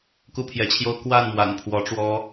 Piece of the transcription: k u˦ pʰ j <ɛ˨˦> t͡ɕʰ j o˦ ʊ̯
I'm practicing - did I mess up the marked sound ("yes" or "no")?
no